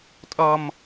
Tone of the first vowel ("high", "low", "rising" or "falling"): low